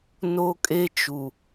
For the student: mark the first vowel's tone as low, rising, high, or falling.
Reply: high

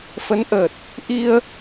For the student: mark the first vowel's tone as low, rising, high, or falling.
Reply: rising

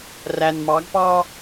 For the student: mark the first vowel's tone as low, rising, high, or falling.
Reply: low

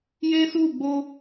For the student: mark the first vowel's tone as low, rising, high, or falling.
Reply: high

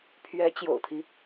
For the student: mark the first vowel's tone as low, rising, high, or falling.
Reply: rising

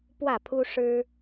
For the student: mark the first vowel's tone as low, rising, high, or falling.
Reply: falling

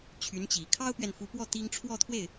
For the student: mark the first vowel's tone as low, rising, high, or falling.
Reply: rising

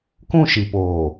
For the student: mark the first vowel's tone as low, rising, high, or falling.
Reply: falling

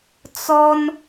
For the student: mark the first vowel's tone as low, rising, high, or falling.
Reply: high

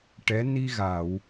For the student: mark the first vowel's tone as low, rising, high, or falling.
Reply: rising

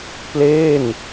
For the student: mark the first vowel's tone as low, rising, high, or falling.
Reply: falling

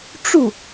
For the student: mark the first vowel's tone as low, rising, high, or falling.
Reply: falling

